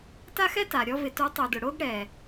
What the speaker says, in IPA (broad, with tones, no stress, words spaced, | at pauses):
ta˥xɛ˥ ta˩ɾʲɔ˧ vɪ˩˥tu˩˥ tˤu˩dʊ˩ ɽo˧ɡɽɛ˩